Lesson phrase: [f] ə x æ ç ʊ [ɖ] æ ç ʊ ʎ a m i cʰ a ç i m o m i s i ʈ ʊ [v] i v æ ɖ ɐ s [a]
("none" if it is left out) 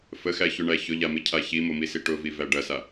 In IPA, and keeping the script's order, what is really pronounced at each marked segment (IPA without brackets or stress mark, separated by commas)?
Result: f, ɳ, v, a